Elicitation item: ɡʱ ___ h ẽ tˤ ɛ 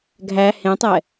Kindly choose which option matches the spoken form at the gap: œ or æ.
æ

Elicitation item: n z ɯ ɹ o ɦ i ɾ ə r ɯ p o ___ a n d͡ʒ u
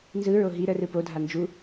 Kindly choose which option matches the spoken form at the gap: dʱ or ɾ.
dʱ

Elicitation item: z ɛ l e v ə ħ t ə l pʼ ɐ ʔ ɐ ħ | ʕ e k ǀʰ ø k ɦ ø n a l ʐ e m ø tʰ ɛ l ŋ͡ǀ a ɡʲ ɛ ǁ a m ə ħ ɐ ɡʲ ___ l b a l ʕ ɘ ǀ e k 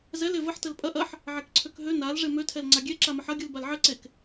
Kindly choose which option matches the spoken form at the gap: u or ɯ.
ɯ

